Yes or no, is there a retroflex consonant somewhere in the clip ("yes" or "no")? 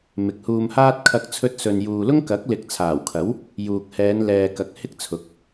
no